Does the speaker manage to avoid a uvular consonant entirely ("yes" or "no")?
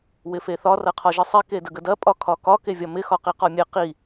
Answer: no